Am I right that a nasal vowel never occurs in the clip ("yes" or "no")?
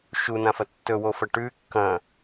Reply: no